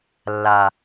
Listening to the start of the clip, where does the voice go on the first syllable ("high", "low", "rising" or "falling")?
low